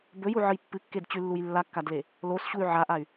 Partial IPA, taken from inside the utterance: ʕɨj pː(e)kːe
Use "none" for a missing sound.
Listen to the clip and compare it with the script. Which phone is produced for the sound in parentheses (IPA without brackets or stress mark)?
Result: ɨ